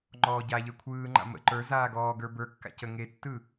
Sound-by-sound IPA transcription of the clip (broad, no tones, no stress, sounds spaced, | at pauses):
ŋ͡ǃ ɔː ɟ a ʎ ə˞ kʷʰ ɯː ŋ͡ǃ a̰ m ə̰ ǃ ə˞ z aː ɡ ɔː ɡ ə˞ b ə˞ kː a̰ c ə ŋ e tː ɯ